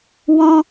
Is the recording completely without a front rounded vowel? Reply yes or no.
yes